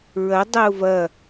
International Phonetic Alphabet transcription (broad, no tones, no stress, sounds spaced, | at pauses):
ɹ ɐ dˤ ɛ ʊ̯ v ɐ